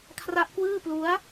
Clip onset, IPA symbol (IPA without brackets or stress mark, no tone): kʰ